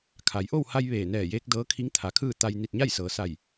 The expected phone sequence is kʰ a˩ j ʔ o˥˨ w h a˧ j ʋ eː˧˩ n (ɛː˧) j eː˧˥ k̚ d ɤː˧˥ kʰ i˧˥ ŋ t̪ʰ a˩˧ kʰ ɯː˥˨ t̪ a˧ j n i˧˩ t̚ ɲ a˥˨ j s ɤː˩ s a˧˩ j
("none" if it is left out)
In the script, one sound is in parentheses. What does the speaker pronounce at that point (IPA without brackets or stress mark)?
ɛː˧˩